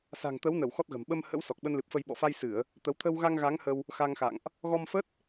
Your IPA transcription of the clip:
s a̤˨˩ ŋ t̪ ə˨˦ w n ə˧˩ w x ɔ˦˥ t̚ ɣ ə̤˨˩ m ɓ ə˧ m h ə̰˧˥ w s ɔ˨˩ k̚ ɓ ə˧ n l ɨ˨˩ p̚ f ə˧ j ɓ ɔ̰˧˨ f a˧ j s ɨ˧˩˨ ə̯ | t̪ ə˨˦ w t̪ʰ ə˧ w ɣ a˧ ŋ ɣ a˨˦ ŋ h ə˧ w | x a˧ ŋ x a̰˧˨ ŋ ʔ | ɣ ɔ˧ m f ə˦˥ t̚

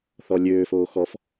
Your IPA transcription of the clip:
θ ɔ lʲ øː f oː x ɔ f

